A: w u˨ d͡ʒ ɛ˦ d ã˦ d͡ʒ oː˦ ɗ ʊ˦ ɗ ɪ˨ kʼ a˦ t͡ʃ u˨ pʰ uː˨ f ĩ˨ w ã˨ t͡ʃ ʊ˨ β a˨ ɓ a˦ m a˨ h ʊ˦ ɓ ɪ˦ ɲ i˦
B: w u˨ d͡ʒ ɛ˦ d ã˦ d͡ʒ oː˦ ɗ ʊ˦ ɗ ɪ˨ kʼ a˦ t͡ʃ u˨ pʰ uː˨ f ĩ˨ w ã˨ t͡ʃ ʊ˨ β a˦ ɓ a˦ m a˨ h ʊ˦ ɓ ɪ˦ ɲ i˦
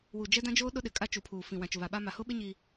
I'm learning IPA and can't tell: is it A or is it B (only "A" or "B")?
A